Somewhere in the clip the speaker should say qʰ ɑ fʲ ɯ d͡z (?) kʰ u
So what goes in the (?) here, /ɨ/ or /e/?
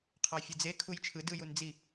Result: e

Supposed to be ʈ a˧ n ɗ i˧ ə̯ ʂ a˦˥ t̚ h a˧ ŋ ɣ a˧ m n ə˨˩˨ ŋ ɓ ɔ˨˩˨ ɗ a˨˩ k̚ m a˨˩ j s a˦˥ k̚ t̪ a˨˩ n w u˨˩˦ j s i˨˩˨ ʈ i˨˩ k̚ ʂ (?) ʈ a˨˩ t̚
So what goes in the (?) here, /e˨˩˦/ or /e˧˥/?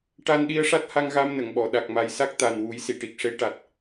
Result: e˧˥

